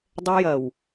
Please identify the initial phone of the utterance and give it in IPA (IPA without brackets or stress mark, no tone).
dˤ